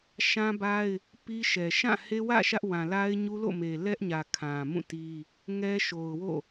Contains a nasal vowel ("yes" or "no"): yes